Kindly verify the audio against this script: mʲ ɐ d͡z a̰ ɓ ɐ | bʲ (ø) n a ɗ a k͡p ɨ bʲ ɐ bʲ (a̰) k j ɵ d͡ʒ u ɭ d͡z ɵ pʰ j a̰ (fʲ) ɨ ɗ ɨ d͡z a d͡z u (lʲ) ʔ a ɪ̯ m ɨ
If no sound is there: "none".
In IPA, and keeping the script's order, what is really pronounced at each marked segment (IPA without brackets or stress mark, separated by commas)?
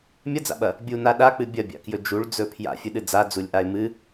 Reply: u, a̰, fʲ, lʲ